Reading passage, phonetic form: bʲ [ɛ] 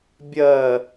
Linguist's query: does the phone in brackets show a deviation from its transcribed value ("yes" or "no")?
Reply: yes